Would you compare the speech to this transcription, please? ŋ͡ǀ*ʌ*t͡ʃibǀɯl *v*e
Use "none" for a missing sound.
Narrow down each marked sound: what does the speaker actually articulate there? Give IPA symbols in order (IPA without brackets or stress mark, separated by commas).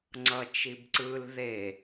ʌ, ð